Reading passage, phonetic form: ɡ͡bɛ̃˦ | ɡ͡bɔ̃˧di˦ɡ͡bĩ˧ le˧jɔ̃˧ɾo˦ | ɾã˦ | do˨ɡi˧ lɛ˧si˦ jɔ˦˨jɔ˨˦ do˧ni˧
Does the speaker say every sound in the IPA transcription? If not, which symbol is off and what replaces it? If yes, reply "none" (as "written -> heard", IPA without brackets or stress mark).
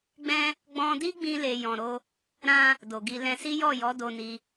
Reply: ɛ˧ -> ɛ̃˧